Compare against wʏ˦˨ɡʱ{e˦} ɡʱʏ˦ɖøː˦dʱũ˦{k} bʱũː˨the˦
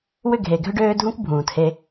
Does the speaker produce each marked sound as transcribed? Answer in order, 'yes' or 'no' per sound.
no, yes

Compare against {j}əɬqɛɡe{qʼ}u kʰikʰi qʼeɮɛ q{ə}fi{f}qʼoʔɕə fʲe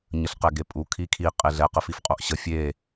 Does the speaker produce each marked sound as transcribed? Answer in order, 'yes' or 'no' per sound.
no, no, yes, yes

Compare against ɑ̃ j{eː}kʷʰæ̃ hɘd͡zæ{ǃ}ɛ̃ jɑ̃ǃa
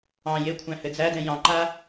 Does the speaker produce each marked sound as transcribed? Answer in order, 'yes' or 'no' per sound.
no, no

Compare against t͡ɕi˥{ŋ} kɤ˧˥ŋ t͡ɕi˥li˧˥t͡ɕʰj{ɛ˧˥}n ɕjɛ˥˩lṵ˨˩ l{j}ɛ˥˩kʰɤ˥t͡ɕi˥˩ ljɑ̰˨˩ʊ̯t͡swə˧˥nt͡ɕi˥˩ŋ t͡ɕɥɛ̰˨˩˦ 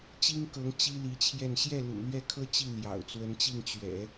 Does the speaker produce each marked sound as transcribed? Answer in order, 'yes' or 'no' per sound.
yes, no, no

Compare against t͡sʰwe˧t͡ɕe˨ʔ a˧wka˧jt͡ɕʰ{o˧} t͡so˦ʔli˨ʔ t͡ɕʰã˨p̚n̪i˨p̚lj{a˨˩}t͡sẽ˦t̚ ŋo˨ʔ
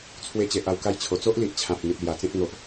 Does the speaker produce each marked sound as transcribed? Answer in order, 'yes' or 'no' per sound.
no, yes

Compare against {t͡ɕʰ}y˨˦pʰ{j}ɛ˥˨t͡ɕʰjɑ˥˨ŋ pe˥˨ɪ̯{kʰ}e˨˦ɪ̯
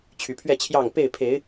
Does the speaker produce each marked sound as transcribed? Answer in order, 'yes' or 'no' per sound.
yes, no, no

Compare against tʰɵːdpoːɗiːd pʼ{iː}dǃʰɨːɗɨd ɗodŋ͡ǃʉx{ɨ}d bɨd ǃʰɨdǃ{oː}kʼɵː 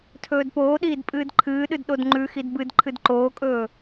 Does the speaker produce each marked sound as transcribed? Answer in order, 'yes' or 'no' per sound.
no, no, yes

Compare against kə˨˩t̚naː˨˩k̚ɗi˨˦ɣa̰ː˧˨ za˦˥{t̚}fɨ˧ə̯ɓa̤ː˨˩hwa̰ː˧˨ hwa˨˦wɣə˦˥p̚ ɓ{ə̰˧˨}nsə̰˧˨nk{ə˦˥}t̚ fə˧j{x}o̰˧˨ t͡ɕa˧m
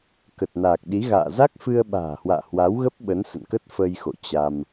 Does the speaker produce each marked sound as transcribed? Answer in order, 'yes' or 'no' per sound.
no, no, yes, yes

